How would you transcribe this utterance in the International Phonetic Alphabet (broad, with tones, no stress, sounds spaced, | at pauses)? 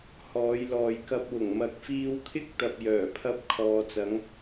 h ɔː˨˧ j l ɔː˨ j k ɐ˧ p̚ w ʊ˨˩ ŋ m ɐ˨˥ k̚ f iː˧ w kʰ ɪ˥ k̚ t̪ ɐ˧ p̚ j œː˨˩ pʰ ɐ˥ p̚ kʰ ɔː˨ t͡s ɐ˨˥ ŋ